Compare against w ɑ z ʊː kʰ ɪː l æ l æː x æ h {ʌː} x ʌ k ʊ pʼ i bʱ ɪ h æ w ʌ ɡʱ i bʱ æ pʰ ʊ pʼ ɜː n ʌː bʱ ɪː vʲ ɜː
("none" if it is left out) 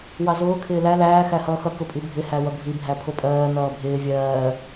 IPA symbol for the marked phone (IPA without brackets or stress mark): ʌː